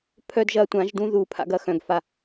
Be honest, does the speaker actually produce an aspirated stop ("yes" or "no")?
yes